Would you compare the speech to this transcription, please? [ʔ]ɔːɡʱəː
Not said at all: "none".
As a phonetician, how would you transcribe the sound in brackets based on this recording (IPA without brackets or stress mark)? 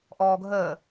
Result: ʔ